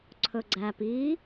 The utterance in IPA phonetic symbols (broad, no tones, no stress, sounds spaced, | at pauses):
ǀʰ ɵ ɡ͡ǀ æ p i